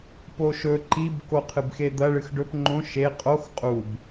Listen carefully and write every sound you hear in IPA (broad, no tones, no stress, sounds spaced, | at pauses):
p o ʃ ɵ ǃ i b k o qʰ ɨ b x e d̪ ɐ ɭ ɨ x ɖ ɵ p ŋ͡ǃ õ ʃ e qʼ o x qʼ u b